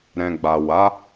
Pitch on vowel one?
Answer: low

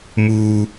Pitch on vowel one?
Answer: low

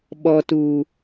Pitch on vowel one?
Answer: low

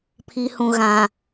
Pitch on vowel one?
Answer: low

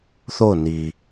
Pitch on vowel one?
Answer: falling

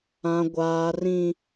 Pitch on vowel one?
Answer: low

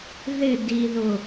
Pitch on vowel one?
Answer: falling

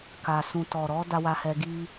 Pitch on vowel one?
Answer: low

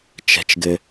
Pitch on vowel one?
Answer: low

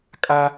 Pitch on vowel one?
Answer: high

